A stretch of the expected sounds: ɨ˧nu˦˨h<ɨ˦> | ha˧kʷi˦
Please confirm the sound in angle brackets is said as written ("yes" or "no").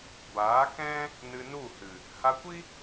no